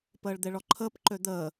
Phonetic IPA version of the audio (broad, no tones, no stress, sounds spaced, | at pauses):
p əː ɭ d̪ e ɭ ɔ ǃʰ əː p ǃ ø d̪ əː